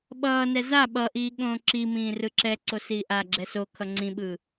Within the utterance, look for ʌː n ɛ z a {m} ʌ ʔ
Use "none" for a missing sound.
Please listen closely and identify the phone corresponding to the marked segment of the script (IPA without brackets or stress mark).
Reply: ɓ